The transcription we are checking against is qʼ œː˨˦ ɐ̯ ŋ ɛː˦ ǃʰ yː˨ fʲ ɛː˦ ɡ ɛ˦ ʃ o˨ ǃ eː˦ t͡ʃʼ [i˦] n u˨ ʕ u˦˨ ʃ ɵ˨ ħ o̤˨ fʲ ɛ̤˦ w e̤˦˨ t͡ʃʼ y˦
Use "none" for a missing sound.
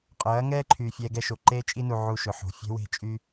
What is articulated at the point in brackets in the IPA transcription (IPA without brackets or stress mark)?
i˦